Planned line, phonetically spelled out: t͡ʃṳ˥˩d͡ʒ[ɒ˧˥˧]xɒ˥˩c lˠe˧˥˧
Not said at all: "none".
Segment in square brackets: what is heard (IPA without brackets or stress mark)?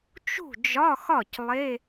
ɒ˧˥˧